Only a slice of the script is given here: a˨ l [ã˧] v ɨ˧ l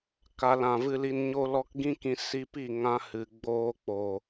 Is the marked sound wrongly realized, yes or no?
yes